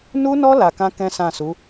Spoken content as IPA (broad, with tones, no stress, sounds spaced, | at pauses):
n u˦ n ɔ˦ l a˧ k ã˦ k ɛ̃˦ s ã˦˨ s u˨˦